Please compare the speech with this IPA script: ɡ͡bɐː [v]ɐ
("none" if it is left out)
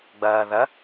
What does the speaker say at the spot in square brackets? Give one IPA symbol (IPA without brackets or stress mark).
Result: ð